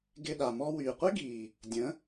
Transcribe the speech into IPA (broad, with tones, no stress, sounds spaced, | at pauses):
ɡ ɪ˧ ɗ a˨ m ɔ˧ w yː˨ qʷ ɪ˦ ɡ iː˨ | dʲ ə̃˨˦